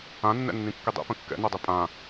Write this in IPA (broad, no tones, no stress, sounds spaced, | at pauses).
ã nː ɛ̰ nː ĩ kː i dˤ ḭ p ə̃ kː ɛ̰ n ɛ dˤ i pʼ ã